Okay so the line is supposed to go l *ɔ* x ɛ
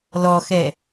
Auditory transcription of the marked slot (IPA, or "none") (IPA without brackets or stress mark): ɔ